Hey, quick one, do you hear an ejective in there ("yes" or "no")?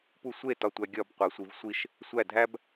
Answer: no